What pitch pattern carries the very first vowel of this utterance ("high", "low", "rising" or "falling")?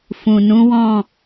low